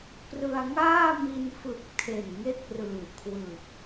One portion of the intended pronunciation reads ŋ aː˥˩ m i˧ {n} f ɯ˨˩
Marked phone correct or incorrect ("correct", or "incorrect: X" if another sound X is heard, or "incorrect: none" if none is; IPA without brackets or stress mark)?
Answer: correct